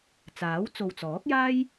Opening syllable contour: rising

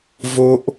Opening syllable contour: high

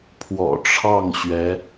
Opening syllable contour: low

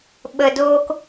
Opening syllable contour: low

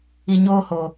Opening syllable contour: low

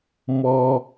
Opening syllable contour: low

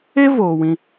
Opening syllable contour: high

